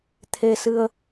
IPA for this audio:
t̪ʰ e˧ s ɨ˧ ə̯

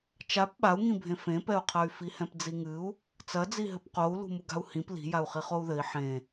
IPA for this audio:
t͡ʃ a p ɓ a u̯ ŋ ĩ bʱ ẽ f ẽ p ɛ u̯ qʰ ɐ y̯ f i h ɛ̃ p d͡z i ŋ ɨ u̯ | t͡s ɐ d͡z i ɦ ɘ p q o u̯ l ṳ m u ɡ a̤ u̯ h ĩ p l i̤ j a u̯ χ i χ o u̯ ð ɘ i̯ ħ ẽ

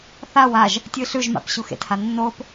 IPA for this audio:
θ a w a ʒ | tʲ ɨ ɬ ʉ ʒ m a̰ p ɕ u x ḛ t h a nː o p

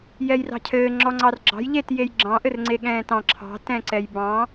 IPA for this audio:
j ɛ j r ɑ̤ cʰ ɘː ŋ͡ǁ ɔ ŋ͡ǀ ɑ r ɡ͡ǁ ɑ̤ j ʎ e t j e j ɡ͡ǁ ɑ̃ ʔ ɘ r ŋ͡ǀ e ɠ ɛ̃ː t ɑ̃ ǁʰ ɑ̤ t ɛ̃ ǀ ɛ j b ɑ̃

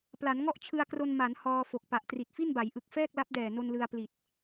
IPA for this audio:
p l a˩˦ n ŋ ɔ˥˩ ʔ t͡ɕʰ ɯ˧ a̯ k r o˧ n m a˩˦ n h ɔː˧ f o˨˩ k̚ p a˨˩ ʔ t r i˨˩ t̚ f i˥˩ n b a˩˦ j ʔ ɯ˨˩ k̚ f ɛː˥˩ k̚ l a˦˥ p̚ d ɛː˨˩ n o˧ n l ɯ˧ a̯ p l i˨˩ t̚

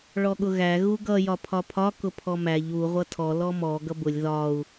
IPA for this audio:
ɭ ɔ ɠ ʊ ɣ æ ɣ u ɡ ʌ j ɒ pʰ ɒ pʰ ɒ k ʊ pʰ ɔ m æ ʎ u ʁʷ ʌ tʰ ɔ l ɔ m ɔ ɡ ʌ b ʊ lʲ ð ɒ u̯

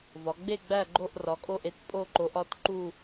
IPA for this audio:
v ɒ˩˧ ɡ͡b e˦˨ ɡ͡b æ˦˨ ɡ͡ǃ o˦˨ ʔ r ɒ˩˧ kʼ o˦˨ ʔ e˦˨ t pʼ o˦˨ ǃ o˩˧ ʔ ɒ˦˨ t ǃ u˦˨

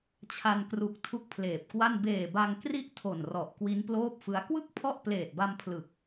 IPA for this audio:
t͡ɕʰ a˧ n k r u˨˩ k̚ tʰ u˥˩ k̚ pʰ l eː˨˩ p̚ k w a˥˩ n b eː˨˩ b a˧ ŋ k r i˥˩ ʔ tʰ o˨˩ n r ɔ˨˩ ʔ k w i˦˥ n p l oː˥˩ p̚ f ɯ˦˥ a̯ k w ɯ˥˩ k̚ pʰ ɔ˥˩ ʔ p l eː˨˩ t̚ b a˧ m pʰ l ɯ˨˩ k̚

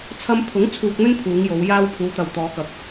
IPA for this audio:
t͡sʰ ɐ˧ m pʰ ʊ˨˥ ŋ t͡sʰ uː˧ k̚ n̪ ɵ˥ n pʰ uː˨˧ ŋ j o˨˧ w j aː˧ w pʰ uː˨˧ t̪ ɐ˨ w t̪ ɔː˨˧ k ɐ˨ k̚

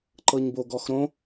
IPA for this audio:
ǃ ɤ ɲ b o ɡ ɔ x ɾ õ

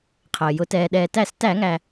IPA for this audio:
qʰ əː˩ j ʊ˩ t ɛː˩ ɗ ɛː˩ t æ˧˩˧ s t æ˧˩˧ ŋ æ˩

